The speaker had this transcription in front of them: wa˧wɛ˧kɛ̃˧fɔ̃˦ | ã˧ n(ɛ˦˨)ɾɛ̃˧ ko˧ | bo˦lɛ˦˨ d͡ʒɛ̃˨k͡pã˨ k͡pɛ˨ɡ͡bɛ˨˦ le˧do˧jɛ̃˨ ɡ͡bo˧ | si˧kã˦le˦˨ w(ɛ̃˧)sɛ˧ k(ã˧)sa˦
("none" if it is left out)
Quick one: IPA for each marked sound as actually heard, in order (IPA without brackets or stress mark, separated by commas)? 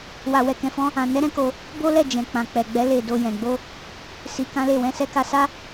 ɛ˦, ɛ̃˧, a˧